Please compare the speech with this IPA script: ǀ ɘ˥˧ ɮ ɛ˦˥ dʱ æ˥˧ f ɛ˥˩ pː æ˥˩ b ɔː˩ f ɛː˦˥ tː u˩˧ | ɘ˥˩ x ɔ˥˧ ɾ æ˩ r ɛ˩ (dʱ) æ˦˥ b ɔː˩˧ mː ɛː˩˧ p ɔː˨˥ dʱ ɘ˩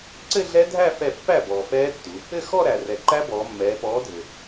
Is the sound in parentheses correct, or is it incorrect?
incorrect